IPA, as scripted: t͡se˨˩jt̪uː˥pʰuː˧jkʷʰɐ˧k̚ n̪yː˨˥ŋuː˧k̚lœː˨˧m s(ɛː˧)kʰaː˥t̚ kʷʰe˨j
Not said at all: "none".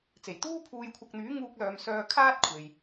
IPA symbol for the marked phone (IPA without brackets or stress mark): œː˧